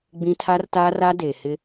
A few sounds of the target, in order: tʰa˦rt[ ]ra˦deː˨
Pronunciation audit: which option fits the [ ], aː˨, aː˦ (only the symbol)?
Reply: aː˦